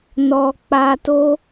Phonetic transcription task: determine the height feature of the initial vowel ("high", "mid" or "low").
mid